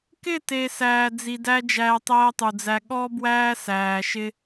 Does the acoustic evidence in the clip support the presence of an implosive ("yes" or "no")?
yes